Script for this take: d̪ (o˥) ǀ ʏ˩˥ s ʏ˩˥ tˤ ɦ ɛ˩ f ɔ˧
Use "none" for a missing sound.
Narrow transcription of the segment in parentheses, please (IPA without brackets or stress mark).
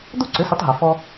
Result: o˥